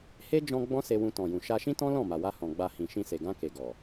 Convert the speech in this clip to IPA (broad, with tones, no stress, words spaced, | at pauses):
he˦ d͡ʒɔ̃˧ ɡ͡bɔ̃˦se˧wũ˧ tɔ̃˨jũ˨ ʃa˧ʃĩ˦tɔ̃˦ lɔ̃˦˨ma˨wa˧ hɔ̃˨ɡ͡ba˧hĩ˨ ʃĩ˧se˨ ɡã˧ ke˨ ɡɔ˨